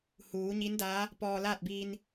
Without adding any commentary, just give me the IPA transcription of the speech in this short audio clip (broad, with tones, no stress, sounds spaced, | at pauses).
h uː˩˧ ɲ i˧˥ n d aː˧˥ | p ɔː˧ l aː˥˨ t̚ b iː˧ n